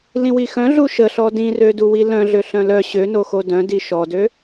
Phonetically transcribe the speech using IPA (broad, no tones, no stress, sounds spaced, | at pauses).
l ĩ w i x œ̃ ɮ u ʃ ə ɬ ɔ d ĩ r ø d u w i l œ̃ ɮ ø ɬ œ̃ l œ ɕ ø n o x o d œ̃ d i ʃ ɔ d ø